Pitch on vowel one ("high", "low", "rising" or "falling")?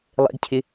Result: high